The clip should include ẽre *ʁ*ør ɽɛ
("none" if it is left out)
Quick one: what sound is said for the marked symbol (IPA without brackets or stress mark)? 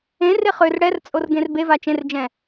χ